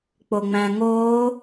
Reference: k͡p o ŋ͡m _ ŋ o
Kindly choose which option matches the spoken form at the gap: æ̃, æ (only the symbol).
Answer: æ̃